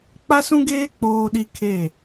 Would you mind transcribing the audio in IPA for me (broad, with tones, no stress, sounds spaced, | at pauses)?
k͡p a˦ s ũ˦ ɡ eː˦ k͡p oː˦ ɗ i˦ kʰ e˦˨